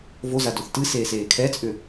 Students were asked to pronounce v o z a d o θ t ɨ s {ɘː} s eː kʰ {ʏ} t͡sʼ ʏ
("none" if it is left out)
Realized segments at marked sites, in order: eː, ɛ

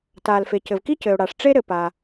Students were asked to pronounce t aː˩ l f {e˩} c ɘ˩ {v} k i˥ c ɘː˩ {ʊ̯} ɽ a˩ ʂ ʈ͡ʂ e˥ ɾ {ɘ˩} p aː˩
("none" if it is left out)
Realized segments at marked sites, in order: e˩, v, ʊ̯, ɘ˩

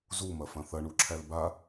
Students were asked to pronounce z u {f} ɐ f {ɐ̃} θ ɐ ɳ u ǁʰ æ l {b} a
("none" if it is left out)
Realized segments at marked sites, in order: m, ɐ̃, b

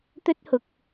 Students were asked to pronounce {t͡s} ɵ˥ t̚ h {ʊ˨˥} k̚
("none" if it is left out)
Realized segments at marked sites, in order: t̪, ʊ˨˥

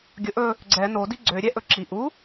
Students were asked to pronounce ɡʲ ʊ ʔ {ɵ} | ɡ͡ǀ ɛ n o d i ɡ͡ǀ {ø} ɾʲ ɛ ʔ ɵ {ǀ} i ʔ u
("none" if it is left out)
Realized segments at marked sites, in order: ɵ, ø, ǁ

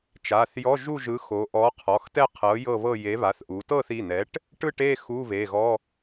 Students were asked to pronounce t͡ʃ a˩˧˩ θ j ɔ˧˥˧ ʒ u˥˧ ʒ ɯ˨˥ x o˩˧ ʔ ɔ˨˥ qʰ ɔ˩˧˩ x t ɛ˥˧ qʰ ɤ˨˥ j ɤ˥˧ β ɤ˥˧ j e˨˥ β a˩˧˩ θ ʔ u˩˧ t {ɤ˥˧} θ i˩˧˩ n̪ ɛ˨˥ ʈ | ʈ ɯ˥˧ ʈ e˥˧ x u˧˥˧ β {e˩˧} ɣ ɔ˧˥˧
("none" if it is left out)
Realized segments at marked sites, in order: ɤ˥˧, e˩˧˩

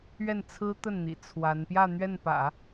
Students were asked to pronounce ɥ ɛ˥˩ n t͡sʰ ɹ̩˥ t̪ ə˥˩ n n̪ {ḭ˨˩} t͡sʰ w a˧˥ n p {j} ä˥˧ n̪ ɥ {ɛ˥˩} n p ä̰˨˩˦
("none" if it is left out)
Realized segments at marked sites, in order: ḭ˨˩, j, ɛ˥˩

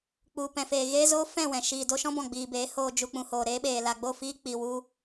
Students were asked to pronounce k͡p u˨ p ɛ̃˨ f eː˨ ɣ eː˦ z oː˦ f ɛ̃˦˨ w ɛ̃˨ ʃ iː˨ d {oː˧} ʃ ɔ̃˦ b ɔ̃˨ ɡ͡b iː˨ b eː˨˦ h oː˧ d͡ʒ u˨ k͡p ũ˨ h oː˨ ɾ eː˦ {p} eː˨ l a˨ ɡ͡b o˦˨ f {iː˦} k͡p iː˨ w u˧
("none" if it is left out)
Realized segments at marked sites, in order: o˧, ɓ, iː˦

